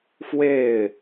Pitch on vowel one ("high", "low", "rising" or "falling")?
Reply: falling